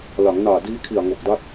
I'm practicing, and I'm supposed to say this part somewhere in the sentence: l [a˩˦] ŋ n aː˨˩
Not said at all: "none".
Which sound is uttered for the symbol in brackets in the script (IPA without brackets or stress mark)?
a˩˦